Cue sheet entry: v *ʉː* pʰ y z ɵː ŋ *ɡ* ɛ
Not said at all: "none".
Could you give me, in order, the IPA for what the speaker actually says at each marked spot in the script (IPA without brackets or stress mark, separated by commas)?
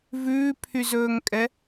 ʉː, kʼ